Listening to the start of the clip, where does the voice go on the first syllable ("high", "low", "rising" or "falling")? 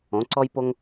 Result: rising